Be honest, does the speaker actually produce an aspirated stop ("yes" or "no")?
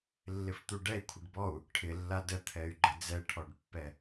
yes